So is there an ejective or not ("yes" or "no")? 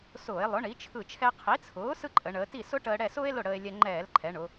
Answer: yes